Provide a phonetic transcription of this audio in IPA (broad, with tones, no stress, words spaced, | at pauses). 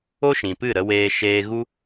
o˦ʃĩ˨ pɨ˦˨ɾə˧weː˧ ʃeː˧ɣu˦